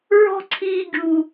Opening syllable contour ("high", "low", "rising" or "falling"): high